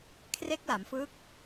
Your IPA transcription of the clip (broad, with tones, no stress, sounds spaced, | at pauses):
kʰ r e˦˥ k̚ l a˩˦ m f ɯ˦˥ k̚